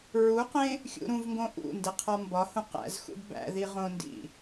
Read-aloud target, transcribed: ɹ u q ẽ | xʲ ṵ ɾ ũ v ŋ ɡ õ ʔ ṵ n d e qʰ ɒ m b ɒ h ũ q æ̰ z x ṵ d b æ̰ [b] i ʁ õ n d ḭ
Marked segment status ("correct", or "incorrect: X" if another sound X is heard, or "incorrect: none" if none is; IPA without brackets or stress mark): incorrect: ð